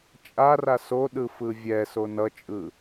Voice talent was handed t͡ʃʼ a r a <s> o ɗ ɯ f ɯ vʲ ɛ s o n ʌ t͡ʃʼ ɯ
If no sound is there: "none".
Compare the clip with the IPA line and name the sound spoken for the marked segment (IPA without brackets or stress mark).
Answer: s